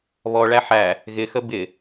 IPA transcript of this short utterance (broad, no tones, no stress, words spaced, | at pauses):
βɔɭæ ħæ | ɣɪxə bɪ